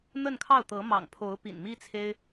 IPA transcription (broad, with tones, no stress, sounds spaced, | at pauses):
n̪ ə˥˧ n kʰ ɑ˥˩ ʊ̯ t̪ ɤ˧˥ m ɑ̰˨˩ ŋ pʰ o˧˥ ʊ̯ p ḭ˨˩ n m i˥ t͡sʰ e˥ ɪ̯